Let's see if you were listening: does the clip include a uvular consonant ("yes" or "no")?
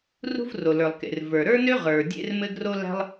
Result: yes